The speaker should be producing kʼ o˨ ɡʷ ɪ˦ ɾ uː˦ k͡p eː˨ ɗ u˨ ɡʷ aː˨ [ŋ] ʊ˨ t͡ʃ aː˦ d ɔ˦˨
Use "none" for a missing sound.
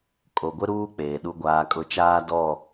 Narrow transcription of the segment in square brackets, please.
kʼ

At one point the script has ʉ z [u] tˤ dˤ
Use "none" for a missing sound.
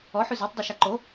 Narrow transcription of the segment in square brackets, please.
o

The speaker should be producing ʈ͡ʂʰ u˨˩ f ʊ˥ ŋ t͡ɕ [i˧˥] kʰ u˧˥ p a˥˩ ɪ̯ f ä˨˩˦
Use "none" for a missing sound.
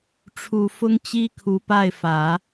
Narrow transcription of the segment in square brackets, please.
i˥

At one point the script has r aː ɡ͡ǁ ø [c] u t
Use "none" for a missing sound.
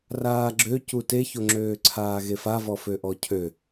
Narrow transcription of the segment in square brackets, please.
c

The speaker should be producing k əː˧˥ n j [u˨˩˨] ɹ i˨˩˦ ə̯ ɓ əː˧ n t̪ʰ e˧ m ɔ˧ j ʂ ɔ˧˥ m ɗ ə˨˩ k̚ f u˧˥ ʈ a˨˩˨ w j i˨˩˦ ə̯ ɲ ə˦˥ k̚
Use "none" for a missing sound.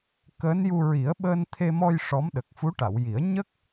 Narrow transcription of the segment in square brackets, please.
u˧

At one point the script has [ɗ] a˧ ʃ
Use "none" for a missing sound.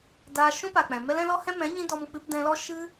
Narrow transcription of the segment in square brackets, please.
d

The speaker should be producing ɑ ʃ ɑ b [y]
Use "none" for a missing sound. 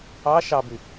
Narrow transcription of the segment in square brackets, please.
y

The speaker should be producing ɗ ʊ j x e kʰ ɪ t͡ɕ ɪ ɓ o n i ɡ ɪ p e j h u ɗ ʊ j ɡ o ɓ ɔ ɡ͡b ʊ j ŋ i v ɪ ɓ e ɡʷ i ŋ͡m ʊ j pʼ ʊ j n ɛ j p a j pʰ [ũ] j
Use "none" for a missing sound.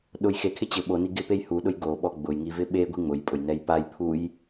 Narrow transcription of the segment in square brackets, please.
u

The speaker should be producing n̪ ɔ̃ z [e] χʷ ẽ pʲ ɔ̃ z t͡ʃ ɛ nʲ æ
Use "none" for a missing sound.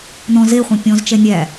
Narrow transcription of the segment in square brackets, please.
e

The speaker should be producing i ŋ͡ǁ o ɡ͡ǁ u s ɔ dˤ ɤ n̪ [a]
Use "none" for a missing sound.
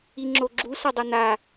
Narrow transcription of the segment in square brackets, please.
a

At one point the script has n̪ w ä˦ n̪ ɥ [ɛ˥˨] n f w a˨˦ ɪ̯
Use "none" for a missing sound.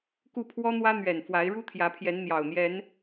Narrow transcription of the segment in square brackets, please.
ɛ˨˩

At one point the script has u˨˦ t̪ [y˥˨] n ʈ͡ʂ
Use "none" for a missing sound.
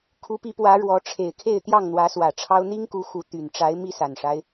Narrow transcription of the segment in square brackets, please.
y˨˩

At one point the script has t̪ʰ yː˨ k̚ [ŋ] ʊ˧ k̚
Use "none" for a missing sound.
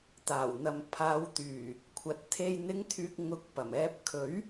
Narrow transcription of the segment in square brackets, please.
ŋ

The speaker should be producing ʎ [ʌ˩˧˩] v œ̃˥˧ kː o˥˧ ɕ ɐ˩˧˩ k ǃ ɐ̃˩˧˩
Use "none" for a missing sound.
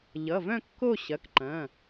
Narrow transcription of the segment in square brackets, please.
ʌ˩˧˩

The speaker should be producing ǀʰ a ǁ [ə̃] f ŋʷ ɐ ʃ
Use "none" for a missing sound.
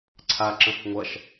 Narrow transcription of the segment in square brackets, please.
ə̃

